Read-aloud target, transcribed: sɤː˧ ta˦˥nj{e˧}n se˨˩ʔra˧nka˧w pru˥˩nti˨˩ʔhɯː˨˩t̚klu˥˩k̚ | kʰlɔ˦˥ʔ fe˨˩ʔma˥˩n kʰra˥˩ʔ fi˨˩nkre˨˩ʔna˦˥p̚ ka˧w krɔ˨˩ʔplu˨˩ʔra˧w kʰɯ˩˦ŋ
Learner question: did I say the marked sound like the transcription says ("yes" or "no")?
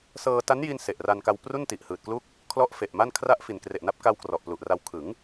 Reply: no